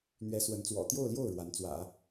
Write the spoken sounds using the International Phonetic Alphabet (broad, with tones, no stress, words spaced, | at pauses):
n̪ɥɛ˧˥ swə˧˥nt͡swɔ̰˨˩ t̪jo˥˧ʊ̯ljo˥˩ʊ̯ ɻwa˧˥nt͡swä̰˨˩˦